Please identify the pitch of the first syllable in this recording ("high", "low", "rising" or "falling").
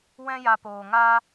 high